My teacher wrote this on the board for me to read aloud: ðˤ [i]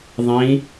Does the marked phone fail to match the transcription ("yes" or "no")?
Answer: yes